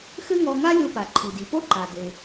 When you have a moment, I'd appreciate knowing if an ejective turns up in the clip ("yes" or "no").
no